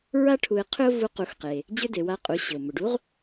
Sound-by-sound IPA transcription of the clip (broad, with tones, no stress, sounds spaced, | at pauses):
ɹ a˥ ʈʰ u˧ ɪ̯ qʰ ʏ˥ ʊ̯ v u˧˥ q u˩˧ x q e˩ | d͡ʑ ʏ˥ d e˩˧ w a˧˥ qʼ u˩˧ ɕ ʏ˩ ʊ̯ m ʏ˩ ɖ u˧˥ ʁ